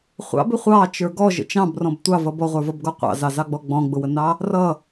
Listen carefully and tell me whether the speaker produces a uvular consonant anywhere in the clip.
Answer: yes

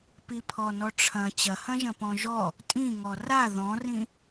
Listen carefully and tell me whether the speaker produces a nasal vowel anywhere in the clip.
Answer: yes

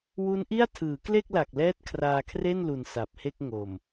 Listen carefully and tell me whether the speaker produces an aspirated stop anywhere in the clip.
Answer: yes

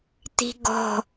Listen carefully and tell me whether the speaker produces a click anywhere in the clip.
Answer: no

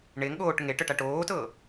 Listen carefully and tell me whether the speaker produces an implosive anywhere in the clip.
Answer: yes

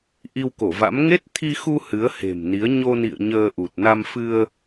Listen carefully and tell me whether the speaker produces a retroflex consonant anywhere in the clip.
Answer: no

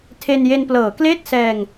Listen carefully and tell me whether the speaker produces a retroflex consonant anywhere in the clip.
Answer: no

